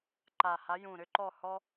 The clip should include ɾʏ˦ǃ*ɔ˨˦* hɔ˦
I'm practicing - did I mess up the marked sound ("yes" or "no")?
yes